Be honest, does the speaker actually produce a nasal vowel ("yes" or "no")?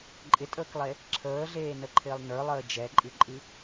no